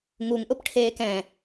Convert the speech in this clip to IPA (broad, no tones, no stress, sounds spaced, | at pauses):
ŋ u ŋ ʔ ʊ p ʈʰ eː k ɛ̃